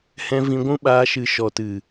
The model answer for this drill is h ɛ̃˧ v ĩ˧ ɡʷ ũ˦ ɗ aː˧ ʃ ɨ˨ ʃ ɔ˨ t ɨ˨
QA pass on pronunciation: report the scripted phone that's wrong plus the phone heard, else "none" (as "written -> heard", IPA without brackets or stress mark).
ɗ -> ɓ